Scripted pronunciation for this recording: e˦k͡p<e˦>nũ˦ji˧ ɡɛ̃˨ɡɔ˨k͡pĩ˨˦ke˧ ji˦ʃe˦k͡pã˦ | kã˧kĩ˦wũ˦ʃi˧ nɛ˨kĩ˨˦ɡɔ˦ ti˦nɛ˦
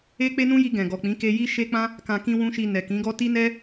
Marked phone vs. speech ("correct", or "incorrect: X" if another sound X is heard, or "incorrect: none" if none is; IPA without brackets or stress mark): correct